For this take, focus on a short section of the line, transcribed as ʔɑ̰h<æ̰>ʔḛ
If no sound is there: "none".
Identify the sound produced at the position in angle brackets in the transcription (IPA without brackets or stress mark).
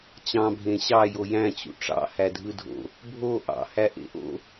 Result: æ